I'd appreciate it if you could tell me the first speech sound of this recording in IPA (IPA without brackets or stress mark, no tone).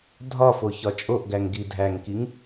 dʱ